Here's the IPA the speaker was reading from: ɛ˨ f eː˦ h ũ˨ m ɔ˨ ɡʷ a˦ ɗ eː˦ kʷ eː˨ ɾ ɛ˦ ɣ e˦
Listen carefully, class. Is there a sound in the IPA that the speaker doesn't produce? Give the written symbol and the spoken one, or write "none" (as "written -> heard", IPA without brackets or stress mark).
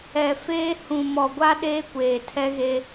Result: ɾ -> tʰ